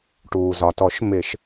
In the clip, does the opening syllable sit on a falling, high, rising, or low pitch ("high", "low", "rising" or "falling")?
low